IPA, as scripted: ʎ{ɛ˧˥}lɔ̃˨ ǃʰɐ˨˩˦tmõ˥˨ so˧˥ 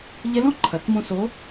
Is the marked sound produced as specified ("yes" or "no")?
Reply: yes